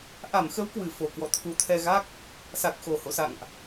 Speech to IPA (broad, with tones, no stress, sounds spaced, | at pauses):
ʔ a˧˩ m x ə˨˦ w k w ɨ˧˩ f o˨˩ k w ɔ̰˧˨ t̪ʰ u˨˦ t̪ʰ ɛ˧ ɣ a˦˥ k̚ | s a˨˩ k̚ x o˨˩ h o̰˧˨ s a̰˧˨ ŋ ʔ